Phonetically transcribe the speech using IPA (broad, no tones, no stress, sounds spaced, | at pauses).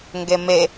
ŋ ɡ e m e